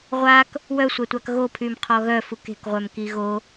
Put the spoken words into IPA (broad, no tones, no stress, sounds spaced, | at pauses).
ʁʷ a k | w œ sʷ a tʷ a k ɣ o pʰ y m qʰ ɔ ɣ œ f u k e̤ k ʁʷ œ m k i ɣ o